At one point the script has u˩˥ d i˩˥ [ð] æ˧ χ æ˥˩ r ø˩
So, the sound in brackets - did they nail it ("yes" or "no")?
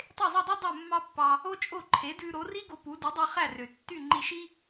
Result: no